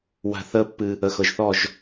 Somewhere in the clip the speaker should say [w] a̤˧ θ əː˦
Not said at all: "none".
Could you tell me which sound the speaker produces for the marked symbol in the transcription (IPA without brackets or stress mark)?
w